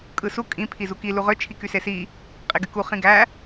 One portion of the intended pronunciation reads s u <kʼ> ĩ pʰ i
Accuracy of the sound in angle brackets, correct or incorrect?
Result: correct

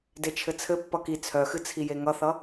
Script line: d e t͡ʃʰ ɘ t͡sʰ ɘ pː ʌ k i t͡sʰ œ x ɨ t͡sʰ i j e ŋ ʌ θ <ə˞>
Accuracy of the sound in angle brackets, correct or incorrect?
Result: incorrect: ʌ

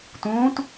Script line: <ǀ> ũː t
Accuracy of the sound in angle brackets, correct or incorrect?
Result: incorrect: t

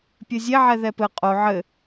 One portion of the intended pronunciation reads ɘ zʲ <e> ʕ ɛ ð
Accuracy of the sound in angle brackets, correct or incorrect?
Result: correct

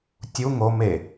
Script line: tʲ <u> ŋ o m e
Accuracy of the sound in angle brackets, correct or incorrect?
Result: correct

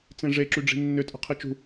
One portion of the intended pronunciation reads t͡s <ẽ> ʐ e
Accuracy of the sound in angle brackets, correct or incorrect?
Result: correct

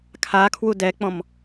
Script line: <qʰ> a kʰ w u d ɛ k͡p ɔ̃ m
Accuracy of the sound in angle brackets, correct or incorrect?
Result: incorrect: kʰ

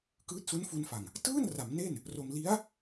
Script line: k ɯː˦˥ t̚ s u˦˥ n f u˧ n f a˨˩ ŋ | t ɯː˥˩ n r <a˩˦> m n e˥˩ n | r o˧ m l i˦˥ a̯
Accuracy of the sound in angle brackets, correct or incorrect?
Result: correct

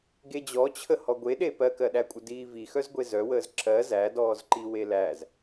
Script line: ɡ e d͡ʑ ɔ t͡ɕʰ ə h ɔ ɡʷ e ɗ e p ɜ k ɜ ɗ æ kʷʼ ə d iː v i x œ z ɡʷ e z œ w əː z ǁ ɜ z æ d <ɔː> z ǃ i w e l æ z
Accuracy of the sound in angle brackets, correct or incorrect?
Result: correct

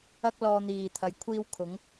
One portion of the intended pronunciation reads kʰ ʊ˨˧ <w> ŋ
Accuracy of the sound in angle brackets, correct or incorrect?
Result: incorrect: none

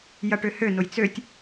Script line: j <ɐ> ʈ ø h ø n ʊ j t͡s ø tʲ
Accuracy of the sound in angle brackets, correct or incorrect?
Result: correct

